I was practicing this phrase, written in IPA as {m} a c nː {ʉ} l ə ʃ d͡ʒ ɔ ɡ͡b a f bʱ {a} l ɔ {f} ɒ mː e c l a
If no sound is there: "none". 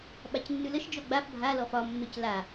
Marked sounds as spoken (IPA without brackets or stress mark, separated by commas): ɓ, ʉ, a, f